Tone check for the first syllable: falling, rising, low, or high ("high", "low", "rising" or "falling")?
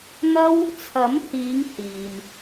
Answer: high